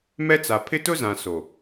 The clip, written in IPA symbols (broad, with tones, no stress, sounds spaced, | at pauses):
m ɛ˦ t͡s a˨ pʰ ɪ˦ t ʊ˦ z ã˨ s o˨